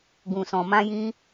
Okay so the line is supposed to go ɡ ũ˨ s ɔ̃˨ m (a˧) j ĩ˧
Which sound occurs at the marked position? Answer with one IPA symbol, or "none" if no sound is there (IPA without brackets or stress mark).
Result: ã˧